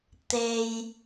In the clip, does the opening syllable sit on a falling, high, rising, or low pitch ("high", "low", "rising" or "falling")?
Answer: low